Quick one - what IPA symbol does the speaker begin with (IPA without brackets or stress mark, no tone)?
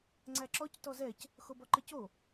ŋ͡ǀ